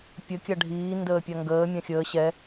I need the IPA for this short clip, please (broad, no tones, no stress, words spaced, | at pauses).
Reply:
pʲə kʲaɖʱiː ndəːpʲaŋɡəː mʲãxʲəː ɕɛ